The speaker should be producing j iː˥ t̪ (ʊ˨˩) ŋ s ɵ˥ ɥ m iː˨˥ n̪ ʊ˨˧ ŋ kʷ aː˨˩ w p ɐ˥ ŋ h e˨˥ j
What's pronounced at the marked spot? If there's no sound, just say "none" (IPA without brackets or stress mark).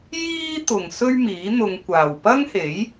ʊ˨˩